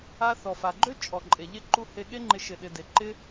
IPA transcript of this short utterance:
a˧θɔ˨fa˨ɡ͡ǃø˦ t͡ʃʼɔ˨ǃʼe˨ʎe˦ǃu˦ he˦ ɠe˦ŋ͡ǃɪ˧ ʃɪ˧ɗɪ˧ de˨ǃɪ˦

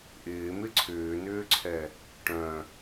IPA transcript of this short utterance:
ʔɪːmɪ ǀʰʏːnʏːǀʰɛ | ʈœ̃

